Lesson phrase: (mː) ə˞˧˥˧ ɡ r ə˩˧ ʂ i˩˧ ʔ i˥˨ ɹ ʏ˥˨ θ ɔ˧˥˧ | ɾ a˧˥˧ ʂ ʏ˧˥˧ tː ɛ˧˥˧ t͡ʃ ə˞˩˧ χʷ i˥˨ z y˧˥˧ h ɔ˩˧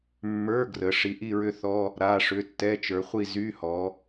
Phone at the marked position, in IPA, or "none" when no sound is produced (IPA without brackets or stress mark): mː